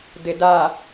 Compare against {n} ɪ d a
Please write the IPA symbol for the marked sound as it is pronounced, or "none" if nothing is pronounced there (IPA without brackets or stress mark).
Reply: d̪